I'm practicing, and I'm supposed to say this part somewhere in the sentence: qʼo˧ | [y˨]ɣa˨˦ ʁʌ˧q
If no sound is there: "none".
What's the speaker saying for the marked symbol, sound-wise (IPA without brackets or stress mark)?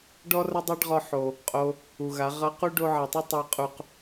u˨